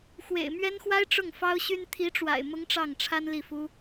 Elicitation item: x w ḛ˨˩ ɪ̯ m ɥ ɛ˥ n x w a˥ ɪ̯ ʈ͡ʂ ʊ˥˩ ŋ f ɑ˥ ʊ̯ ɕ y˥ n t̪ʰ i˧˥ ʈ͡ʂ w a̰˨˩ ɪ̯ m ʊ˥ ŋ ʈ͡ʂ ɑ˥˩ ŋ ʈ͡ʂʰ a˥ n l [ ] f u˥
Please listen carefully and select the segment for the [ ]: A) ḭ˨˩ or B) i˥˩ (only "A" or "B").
B